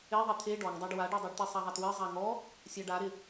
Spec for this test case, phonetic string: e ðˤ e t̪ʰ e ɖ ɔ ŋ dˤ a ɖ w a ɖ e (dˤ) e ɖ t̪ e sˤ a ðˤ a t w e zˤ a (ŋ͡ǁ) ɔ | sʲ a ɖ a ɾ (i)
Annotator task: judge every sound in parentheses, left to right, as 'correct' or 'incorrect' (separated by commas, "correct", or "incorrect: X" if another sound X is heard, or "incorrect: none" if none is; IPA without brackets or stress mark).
correct, incorrect: ŋ, incorrect: ɪ